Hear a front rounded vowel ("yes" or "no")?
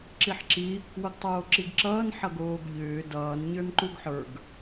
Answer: yes